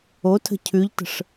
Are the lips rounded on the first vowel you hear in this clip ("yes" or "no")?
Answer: yes